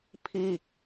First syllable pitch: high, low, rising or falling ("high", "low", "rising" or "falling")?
falling